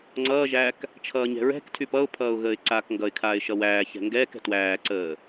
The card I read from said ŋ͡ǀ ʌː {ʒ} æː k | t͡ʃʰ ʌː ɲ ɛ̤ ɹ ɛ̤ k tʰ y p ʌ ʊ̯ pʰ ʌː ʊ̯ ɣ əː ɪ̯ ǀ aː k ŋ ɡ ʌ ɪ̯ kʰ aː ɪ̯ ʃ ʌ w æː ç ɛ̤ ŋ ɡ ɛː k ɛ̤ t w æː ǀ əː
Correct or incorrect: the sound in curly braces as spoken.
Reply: correct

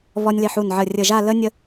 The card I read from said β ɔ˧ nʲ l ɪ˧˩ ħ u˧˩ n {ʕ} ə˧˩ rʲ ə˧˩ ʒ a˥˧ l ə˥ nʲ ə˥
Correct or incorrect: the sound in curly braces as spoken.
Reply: correct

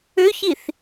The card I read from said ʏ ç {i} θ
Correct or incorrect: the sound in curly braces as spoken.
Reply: correct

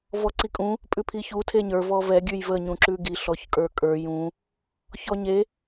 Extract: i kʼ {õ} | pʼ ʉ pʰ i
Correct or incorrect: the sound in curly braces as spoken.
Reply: incorrect: ũ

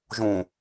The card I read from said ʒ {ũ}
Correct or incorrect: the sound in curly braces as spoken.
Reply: correct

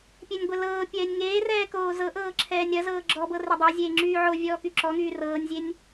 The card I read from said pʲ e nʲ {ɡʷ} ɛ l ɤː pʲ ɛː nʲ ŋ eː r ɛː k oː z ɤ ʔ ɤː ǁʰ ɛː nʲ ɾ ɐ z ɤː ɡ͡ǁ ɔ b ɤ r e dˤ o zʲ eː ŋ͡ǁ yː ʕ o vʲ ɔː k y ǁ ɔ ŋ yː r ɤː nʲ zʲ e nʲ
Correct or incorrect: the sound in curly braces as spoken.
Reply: correct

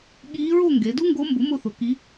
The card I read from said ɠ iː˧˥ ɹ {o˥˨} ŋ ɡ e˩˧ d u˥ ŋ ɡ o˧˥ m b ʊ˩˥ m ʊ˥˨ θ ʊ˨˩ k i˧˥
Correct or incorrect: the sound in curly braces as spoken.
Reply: correct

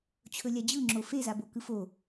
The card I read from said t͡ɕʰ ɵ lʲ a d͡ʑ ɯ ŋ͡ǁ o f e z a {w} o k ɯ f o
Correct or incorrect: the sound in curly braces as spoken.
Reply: incorrect: b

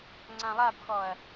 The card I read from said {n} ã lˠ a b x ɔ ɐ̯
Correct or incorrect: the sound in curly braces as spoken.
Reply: incorrect: ŋ͡ǀ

